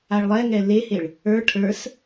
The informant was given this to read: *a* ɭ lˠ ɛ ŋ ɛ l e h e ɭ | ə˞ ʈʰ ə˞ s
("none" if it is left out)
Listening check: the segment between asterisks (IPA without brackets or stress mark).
a